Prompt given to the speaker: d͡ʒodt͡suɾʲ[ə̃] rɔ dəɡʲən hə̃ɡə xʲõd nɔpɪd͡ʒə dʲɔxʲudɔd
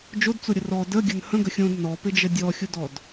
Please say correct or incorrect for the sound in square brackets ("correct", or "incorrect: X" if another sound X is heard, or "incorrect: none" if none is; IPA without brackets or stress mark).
incorrect: ə